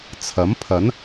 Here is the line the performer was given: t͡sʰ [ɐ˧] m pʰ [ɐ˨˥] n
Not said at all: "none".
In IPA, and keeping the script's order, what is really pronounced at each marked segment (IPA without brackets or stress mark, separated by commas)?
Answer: ɐ˨˥, ɐ˨˥